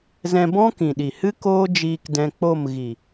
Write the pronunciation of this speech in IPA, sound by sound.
z ɛ̃˧ b ɔ̃˦ k ĩ˨ ɗ i˨ h ɨ˦ k oː˦ d͡ʒ iː˧ k d ɛ̃˧ k͡p o˦˨ m ɣ i˨

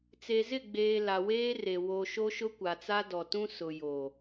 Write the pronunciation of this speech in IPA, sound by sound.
t͡s e˨ z ɪ˦˨ ɡ͡b eː˨ l a˨ w eː˦ r e˨ w o˨ ʃ o˦ ʃ ʊ˦ kʷ a˨ t͡s a˦ d ɔ˨ t ũ˦ s ʊ˨ j o˨

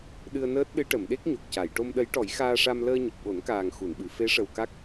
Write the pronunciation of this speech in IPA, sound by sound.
ɗ ɨ˧ ə̯ n əː˦˥ t̚ ɗ ɨ˧˥ ʈ ə˨˩˨ m ɗ e˦˥ k̚ ɲ o˨˩ k̚ c a˨˩˨ j ʈ o˧ m ɗ ə˧˥ j ʈ ɔ˨˩˦ j x aː˧ ʂ a˧ m l əː˧ ɲ ə˨˩ k̚ ɓ o˨˩˦ n k aː˨˩ ŋ x u˨˩˨ n ɓ ɨ˨˩˨ f e˧˥ ʂ ə˨˩ w k a˦˥ k̚

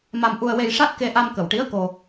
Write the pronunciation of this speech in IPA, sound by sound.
m a˧ m ʔ u˧ ə̯ w e˧ j ʂ a˦˥ t̚ k e˧ ʔ a˧ m k ə˨˩ w ʈ i˧˥ ə̯ k o˧

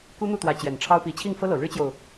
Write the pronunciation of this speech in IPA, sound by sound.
k u˥ n̪ u˥˩ t̪ w ä˧˥ t͡ɕ j ɛ˨˩ n ʈ͡ʂʰ ɑ˥ ʊ̯ p i˧˥ t͡ɕʰ i˥˩ ŋ f ɤ˥ l ɤ˨˩ ɻ ɻ̩˥ t͡ɕ j o˨ ʊ̯

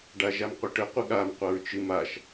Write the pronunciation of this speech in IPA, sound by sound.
ɖ a ʒ a m qʷ ɨ ʈ ə qʷ ɨ ɠ a m qʷ a ɹ t͡ʃ ɨ m a ʃ

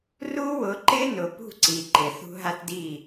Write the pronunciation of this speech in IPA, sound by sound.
r u˦ w ʊ˨˦ ǃ ɪ˦ n ʊ˨ p ṳ˦˨ ǀ i˨ ǃ ɪ˨ θ ṳ˦ ɦ a˦ t d i˦˨

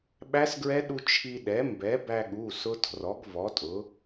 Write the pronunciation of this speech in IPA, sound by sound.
ɓ æ˦˥ s ɡ ɹ ɛ˦˥ ɗ u˧ t͡ʃʰ i˧ ɗ ɛ˩˥ m b ɛ˩˥ b æ˧ ɠ u˩˧˩ s ʊ˦˥ tʰ r ɔ˩˥ ɡ v ɔ˩˥ tʼ ʊ˩˥

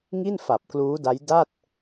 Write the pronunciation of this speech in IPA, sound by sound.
ŋ i˥˩ n f a˨˩ p̚ k l uː˦˥ d a˦˥ j d a˥˩ t̚

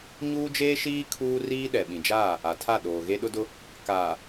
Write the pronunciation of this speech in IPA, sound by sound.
ɲ uː˦ d͡ʒ eː˦ ʃ iː˦ kʰ uː˦ r iː˦ ɗ ɛ˨ ɓ ĩ˨ d͡ʒ aː˦˨ | a˨ tʰ a˦˨ ɗ oː˨ ɣ e˦ ɗ ʊ˦ d ʊ˦ | k aː˨

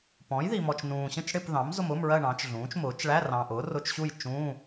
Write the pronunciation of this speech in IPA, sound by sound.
p ɔ̃˩˥ j ð i˨ m ɔ˨ t͡ʃ n ũː˨ ɕ ə̃˥˧ t͡ʃ ɽ ɪ˥˧ p ð ɑ̃˩˥ m z ʊ˥˧ m ʊː˧˥˧ m ɹ ɜ˥˧ ɳ ɑ̃˩˥ t͡ʃ ɮ ũː˩˥ t͡ʃ m ʊː˩˥ t͡ʃ ɭ æ˧˥˧ r ɑ̃˨ ʔ ʊː˩˥ r ʊ˧˥˧ t͡ʃ ɕ u˥˧ j t͡ʃ ũ˧˥˧

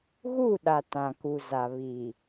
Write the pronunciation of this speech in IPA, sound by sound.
ɣ u˦˨ ɗ a˨ t ã˨ k u˨ z a˨ β i˨

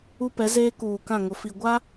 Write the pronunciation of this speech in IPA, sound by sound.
u˦ p ɛ˨˦ z eː˦ k uː˨ k ã˦˨ ŋ ʊ˨ f i˨ ɡʷ a˦

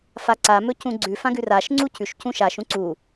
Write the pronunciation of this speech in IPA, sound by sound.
f a ǀ a m ɵ c ũ ɡ͡ǀ ʉ f ã ɡ ʉ r a ʃ ŋ͡ǀ u c ʉ ʃ c ũ ʃ a ʃ ũ ǀ u

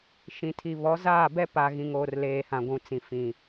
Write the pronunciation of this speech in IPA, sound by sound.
ʃ ĩ˨ tʰ i˨ β ɔ˨˦ z aː˦˨ b ɛ˦ p a˨ ɣ ĩ˨ ŋ oː˨ r l eː˨ h ã˨ ɡʷ ũ˨ t͡s ĩ˨ f ĩ˨

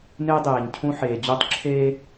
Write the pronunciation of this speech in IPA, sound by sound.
n e˦ dˤ eː˨ ɲ cʰ ũ˦ ħ eː˨ d͡ʑ u˦˨ tˤ ǁʰ eː˦

